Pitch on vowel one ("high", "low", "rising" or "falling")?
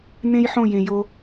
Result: high